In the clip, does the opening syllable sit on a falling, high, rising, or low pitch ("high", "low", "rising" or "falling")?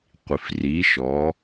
low